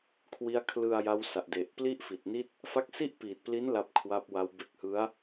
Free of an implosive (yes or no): yes